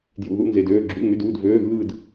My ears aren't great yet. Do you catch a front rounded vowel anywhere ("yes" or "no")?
yes